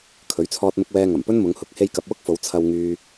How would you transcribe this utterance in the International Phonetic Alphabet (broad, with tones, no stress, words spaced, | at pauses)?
kʰɵ˨˥ɥt͡sʰɔː˧t̚mʊ˧k̚wɛː˧ ŋɐ˨˩mpɵ˥nmʊ˨˧ŋhʊ˨˥k̚ he˧jkɐ˨p̚wʊ˥k̚fo˨˧w t͡sʰɐ˧w ŋyː˧